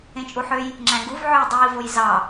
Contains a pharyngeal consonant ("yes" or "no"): yes